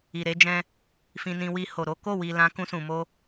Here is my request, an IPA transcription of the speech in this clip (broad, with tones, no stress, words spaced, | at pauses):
i˨ɾe˨˦d͡ʒɛ̃˧ | fĩ˧nĩ˦ wi˧ ho˨ɾo˨˦ko˦˨ wi˧lã˦ kũ˧sũ˨mo˧